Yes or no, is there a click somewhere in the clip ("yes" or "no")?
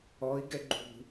yes